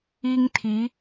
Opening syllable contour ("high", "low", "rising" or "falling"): high